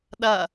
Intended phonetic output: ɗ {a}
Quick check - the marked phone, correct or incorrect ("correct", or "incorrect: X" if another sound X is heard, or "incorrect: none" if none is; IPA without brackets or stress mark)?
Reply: incorrect: ɐ